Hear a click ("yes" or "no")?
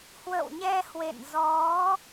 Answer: no